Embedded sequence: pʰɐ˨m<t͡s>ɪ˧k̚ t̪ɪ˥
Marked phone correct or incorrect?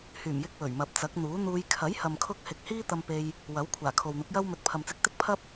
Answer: correct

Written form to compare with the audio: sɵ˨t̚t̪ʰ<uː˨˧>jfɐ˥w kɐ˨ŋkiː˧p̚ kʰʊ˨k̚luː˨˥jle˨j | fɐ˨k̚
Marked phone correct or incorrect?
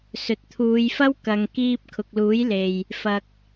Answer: correct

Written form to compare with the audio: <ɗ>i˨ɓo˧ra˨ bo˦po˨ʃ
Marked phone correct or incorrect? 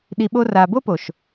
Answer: correct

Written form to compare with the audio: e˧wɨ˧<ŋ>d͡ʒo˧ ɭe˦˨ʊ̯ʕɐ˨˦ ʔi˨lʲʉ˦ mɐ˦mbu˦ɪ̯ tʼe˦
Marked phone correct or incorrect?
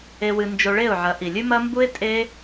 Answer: incorrect: n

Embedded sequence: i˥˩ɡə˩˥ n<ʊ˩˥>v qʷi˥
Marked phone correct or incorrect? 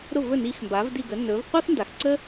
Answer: incorrect: ɵ˩˥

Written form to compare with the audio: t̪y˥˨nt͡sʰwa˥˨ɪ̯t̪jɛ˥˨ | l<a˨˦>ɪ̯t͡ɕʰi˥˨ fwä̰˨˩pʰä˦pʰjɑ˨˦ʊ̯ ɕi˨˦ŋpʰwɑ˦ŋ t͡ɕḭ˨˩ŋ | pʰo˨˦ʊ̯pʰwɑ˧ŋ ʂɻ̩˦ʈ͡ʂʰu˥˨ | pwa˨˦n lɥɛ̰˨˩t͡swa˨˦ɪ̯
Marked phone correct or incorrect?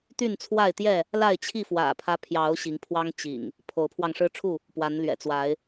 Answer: incorrect: a˥˨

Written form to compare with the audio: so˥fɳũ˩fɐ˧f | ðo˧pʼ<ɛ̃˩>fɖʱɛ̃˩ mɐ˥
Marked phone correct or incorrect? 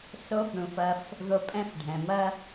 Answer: incorrect: ɛ̃˥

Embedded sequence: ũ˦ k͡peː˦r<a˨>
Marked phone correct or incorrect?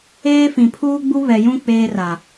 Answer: correct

